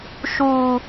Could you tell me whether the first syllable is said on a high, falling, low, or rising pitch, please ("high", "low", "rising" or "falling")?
high